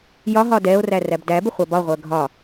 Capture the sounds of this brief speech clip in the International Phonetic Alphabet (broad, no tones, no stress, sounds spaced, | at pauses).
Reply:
j ɒ ɦ ɒ d ɛ o̯ r æ r æ b d æ b ɪ χʷ ɑ b ɒ ʁʷ ɜ ɡʱ ɒ